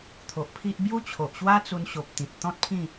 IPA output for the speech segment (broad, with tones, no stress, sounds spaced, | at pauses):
t̪ʰ o˨ ʔ pʰ i˦ ʔ b j u˦ t͡ɕʰ o˨ ʔ ɕ w a˦ t͡s u˧ n ɕ o˨ p̚ t̪ ĩ˨ t̚ t̪ ɔ̃˦ t̚ pʰ ĩ˥˧